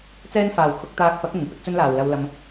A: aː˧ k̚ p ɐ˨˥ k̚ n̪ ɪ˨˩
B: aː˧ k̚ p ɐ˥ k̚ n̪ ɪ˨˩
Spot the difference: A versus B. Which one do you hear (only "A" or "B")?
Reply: A